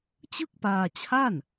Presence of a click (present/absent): absent